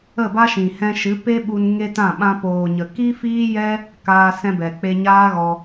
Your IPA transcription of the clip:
ə˦˨ b a˦ ʃ ĩ˨ h ɛ̃˧ ʃ ɨ˨˦ p e˦ ɓ u˧ n ŋ e˦ t ã˦˨ ɓ ã˧ p oː˨ ɲ ə˨ k i˦ f iː˦ j ɛ˦ | k aː˧ s ɛ̃˧ b ɛ˨ k͡p e˧ ɲ aː˦ ɣ ɔ˧

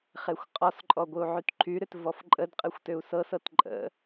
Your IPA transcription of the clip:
χ e xʷ qʼ ɔ s ǃʼ ɔ ɡʷ ɨ u̯ ʕ y t ǃʰ y ɾ ʏ t v ɔ f ǃʼ ə d qʼ ɨ xʷ t ʏ u̯ s ɤ s ɤ t ǃʼ ə̰

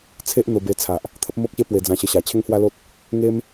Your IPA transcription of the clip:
t͡sʰ e˦ ʔ n̪ o˧ b e˧ t͡sʰ a˨ ʔ | t̪ʰ ə˦ p̚ m o˦ k̚ ɕ e˦ p w e˧ d͡z ã˧ ɕ ə˧ ɕ a˨˩ t͡ɕʰ e˦ ŋ h w a˦ l o˦ t̚ | ŋ e˦ m

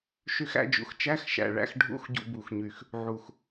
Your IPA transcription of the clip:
ʃ y˧ x æ̰˧ d͡ʒ ṵ˨˩ x t͡ʃ æ˧˥˧ x ʃ æ̰˨˩ ɭ æ̰˧ x ɖʱ ṵ˧˥˧ x ɟ ṵ˧ b u˨˩ x ɲ y˨˩ x | ʕ u˨˩ x

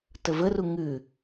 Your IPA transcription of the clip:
t ə v ə r u ŋ ʉ

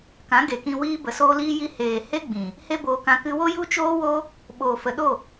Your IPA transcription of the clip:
k ã˨˦ ɡ e˨ k ĩ˧ w iː˧ b ə˨ s oː˧ l iː˧ j i˧ h eː˨ h e˦ ɡ͡b ĩ˨ | h e˦ b oː˧ k ã˧ k ɨ˧ w o˦ j u˦ t͡ʃ oː˦ w o˦ | ɓ oː˨ f ə˨ ɗ o˦˨

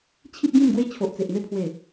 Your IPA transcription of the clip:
t͡ɕʰ i˦ p̚ ɡ ĩ˥˧ m ɡ w e˦ t͡ɕʰ o˨ ʔ t͡s e˨ ʔ n̪ e˥˧ pʰ w e˨˩

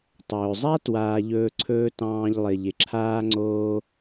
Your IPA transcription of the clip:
tˤ ɵː˩ zˤ a˥ t w aː˨ ʎ ɵː˦ ǀʰ ɵː˥ t ɑ̃ː˦ ʎ lˠ ɪ˩ ʎ ɪ˩ ǁʰ aː˦ ŋ͡ǀ oː˦

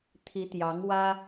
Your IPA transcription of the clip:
t̪ʰ i˧˥ t̪ j ɑ˧˥ ŋ w ä˥

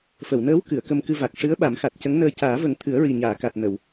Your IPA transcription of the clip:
f ə˨˩˨ w n əː˧˥ w k ɨ˨˩˨ ə̯ k ə˧ m k ɨ˧ v a˨˩ k̚ ʂ ɨ˧˥ ə̯ ɓ a˨˩˦ m x a˨˩ t̚ c ə˧˥ ŋ n əː˧ c aː˨˩˦ v ə˨˩˦ ŋ t̪ʰ ɨ˨˩˦ ə̯ ɹ i˨˩ ɲ aː˨˩˨ k a˨˩ t̚ n ə˨˩˨ w

